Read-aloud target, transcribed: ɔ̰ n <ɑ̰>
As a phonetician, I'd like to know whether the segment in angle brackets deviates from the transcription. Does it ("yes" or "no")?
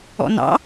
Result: no